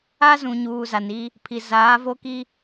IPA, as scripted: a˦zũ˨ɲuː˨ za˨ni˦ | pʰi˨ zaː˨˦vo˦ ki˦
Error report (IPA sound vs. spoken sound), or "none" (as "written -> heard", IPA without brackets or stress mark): none